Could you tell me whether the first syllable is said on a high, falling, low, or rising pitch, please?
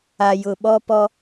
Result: low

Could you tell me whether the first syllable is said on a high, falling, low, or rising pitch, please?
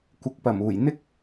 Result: rising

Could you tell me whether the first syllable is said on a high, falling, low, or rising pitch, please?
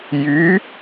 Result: rising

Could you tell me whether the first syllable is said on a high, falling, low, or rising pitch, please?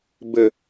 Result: low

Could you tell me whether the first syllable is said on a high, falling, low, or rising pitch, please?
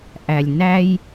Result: low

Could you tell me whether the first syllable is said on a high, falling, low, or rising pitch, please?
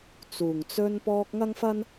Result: low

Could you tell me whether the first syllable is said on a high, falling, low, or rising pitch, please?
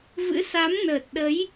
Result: rising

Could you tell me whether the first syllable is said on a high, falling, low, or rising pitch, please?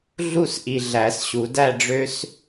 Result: falling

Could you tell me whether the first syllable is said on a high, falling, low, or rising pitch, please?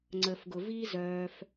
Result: low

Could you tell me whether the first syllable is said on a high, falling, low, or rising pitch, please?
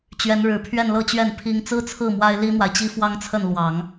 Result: rising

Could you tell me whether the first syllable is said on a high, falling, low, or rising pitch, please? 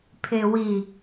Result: low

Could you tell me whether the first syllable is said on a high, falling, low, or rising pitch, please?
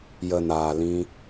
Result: low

